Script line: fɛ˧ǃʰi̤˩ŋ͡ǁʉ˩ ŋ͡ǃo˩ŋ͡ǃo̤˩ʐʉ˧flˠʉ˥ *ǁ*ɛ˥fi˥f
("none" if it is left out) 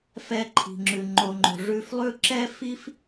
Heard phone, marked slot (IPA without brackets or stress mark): ǁ